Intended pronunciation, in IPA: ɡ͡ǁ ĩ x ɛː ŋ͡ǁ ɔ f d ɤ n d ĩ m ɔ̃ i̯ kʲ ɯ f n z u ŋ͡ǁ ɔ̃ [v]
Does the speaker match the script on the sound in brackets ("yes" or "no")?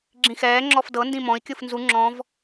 yes